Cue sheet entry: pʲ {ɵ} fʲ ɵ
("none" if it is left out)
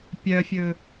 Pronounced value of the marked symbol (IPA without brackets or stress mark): œ